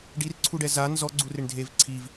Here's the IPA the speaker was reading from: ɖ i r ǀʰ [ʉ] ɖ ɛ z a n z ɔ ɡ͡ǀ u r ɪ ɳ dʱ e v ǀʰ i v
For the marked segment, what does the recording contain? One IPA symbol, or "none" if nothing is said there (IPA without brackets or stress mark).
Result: u